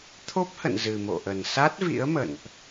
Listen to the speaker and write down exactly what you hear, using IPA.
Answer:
t̪ʰo˦˥p̚hə̰˧˨n zɨ˨˩mo̰˧˨ʔə˨˩n sa˦˥t̚vḭ˧˥ə̯mə̰˧˨nʔ

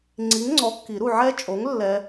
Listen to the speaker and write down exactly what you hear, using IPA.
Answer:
ŋ͡ǀi˨˥ŋŋ͡ǀɔ˨˥kːi˨˩˦ɾu˨ ʕɛ˦˥t͡ʃʼo˨˥ŋ lːɛ˦˥

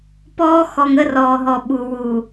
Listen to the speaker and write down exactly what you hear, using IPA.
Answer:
pɔː˦xɔ˨ŋ ə˦rɔː˨ɦɔ˨ɓu˨ wu˨

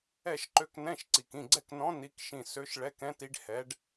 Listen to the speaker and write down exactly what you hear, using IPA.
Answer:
ɛ˥˩ʃǃø˧˥knɛ̃˧˥˧ʃǀi˨˩k ĩ˥˩ɡ͡ǀɛ˥˩knɔ̃˧˥ ni˧˥kʃĩ˥˩ sø˧˥ʃɭɛ˧˥˧k ɛ̃˧˥ti˧˥ɖ hɛ˧˥ɖ

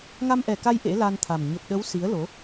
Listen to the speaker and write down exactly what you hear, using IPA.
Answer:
ŋa˧mʔɛ˨˩ka˧j ʔḛ˧˥la˧nt̪ʰa˨˩m ɲə˨˩p̚ɗə˨˦w si˨˦ə̯lo˨˦

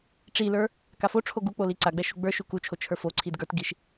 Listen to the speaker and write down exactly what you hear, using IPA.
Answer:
ʈ͡ʂilə˞ | kafo ʈ͡ʂʰoɡuk͡poli ǀaɡ͡bɛʃu ɡ͡bə˞ ʃukut͡ʃʰo t͡ʃʰə˞fo ǀʰidɡə˞tɡiʃ

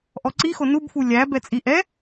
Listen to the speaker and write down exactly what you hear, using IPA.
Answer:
ʔɔǀixo nubfu lʲæ bɛt͡sʼiʔɛ

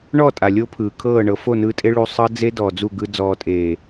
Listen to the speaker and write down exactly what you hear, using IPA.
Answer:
ɳɔ˦˨tʼa˨ lʲo˦pʰɯː˨kʰɤː˦˨ɳɤ˧ fo˦˨nɯː˧tʼe˧ ɭu˧ sˤɤ˦d͡ze˦dɔː˨ d͡zu˦˨ɡɯ˧ d͡zɔː˨tʼeː˨

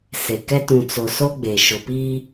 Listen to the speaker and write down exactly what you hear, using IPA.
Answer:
se˨kɛ˦ tũ˨t͡so˨ so˦ɡ͡be˨ ʃʊ˨piː˦

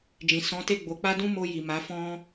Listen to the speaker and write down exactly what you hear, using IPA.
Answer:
d͡ʒĩ˨sɔ̃˨˦ te˦˨ ɡ͡bo˨˦k͡pa˦ dũ˦mo˧ ji˨ma˨˦fɔ̃˦

